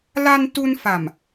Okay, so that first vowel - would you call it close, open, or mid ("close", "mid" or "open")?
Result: open